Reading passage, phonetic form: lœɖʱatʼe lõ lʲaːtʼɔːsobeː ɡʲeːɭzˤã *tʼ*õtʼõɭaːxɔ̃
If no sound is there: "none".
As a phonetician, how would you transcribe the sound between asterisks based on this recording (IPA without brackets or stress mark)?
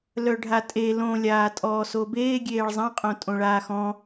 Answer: qʼ